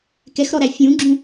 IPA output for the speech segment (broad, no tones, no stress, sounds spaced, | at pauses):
k ɛ x ɾ ɔ ɾ æ fʲ ũ ɡ͡ǁ ũ